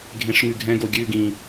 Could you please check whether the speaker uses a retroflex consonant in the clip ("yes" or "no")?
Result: yes